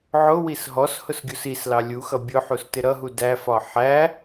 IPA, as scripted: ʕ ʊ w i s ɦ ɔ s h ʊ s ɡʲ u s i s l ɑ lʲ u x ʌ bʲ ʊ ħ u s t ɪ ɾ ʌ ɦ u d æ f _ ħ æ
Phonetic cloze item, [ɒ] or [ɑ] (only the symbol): ɒ